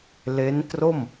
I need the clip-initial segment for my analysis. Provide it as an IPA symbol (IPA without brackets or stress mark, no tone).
l